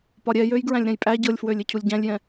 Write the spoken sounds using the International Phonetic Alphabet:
p ɒ ɾʲ ɛ j ø j ɡ ɹ æ̃ lʲ ɾ ɛ̃ j pʼ æ ɟ ɤ lʲ f w ø lʲ e cʰ u lʲ ɟ æ̃ lʲ j ɛ̃

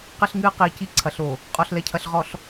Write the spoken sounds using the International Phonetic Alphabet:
q ɘ˦ ɬ ŋ ɨː˦ q iː˨ c i˦ ǀʰ ɐ˨ ɬ o˨ | qʼ ɔ˨ ɬ l ɛ˨ cʰ ɐ˨ ɬ ʁ ɔ˨ ɬ

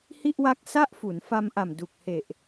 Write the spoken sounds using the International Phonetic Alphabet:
h i˥˩ ʔ w a˦˥ k̚ s a˥˩ ʔ f u˩˦ n f a˧ m ʔ a˨˩ m d u˨˩ k̚ h e˨˩ ʔ

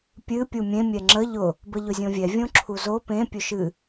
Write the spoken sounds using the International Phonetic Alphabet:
pʲ ɨ pʲ u mʲ ẽ mʲ ɛ ŋ͡ǁ ə ʎ ʊ | b ə ʎ ʊ zʲ õ vʲ ɛ vʲ õ ǁʰ u z o p ẽ pʲ ɵ ʃ ɨ

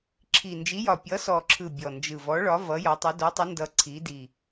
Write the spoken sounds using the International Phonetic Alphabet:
ǁʰ i˨˩ n d͡ʒ i˨˦ j ɒ˨˩ pʲ ʌ˨˦ s ɔ˨˩ ǁʰ ɯ˨˩ bʲ ɔ˨˩ n d͡ʒ ɯ˨˩ v ɔ˨˦ ɭ ɒ˨˦ v ʌ˨˦ j ɒ˨˦ tˤ ʌ˨˦ d o˨˦ tˤ ʌ˨˦ n d ʌ˨˩ ǀʰ i˨˦ d i˨˩

